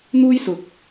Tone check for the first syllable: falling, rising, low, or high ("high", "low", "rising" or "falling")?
high